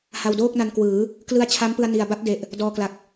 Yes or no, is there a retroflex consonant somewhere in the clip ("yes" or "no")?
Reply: no